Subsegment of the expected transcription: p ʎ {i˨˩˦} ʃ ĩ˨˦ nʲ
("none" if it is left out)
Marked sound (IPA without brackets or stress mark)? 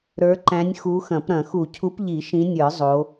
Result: i˨˩˦